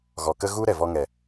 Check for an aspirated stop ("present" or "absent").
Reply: absent